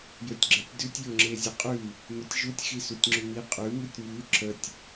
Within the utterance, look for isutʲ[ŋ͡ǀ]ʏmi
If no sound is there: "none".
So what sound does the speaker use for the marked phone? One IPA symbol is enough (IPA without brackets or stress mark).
ŋ͡ǁ